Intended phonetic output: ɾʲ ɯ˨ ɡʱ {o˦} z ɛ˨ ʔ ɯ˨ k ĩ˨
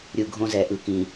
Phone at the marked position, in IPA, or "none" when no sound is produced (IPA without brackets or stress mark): õ˦